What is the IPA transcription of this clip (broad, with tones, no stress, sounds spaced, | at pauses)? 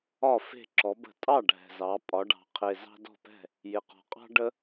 ɒ˥˩ f e̤˥˩ ǁ ɔ˩˧ b ə̤˧˩˧ tʼ ɑ˥˩ ɖʱ ɛ̤˨˩ z ɑ˩˧ pʼ ɒ˩˧ ɖ ɑ̤˨˩ qʰ e˨˩ z ɑ̤˦ d ɔ̤˥˩ p ɛ̤˥˩ | j ɪ˨˩ q ɔ̤˨˩ qʼ ɑ̤˦ ɖ ə˦